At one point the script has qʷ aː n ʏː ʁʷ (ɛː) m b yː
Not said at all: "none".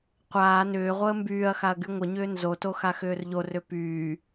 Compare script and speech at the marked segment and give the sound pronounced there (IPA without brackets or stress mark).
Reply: əː